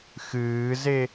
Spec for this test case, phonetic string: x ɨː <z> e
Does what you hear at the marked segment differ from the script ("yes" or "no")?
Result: no